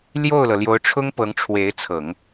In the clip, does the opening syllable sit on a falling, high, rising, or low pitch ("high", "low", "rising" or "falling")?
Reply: falling